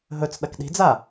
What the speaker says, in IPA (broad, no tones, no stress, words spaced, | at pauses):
ɦɵt͡s ɗɐkɗi̤d͡za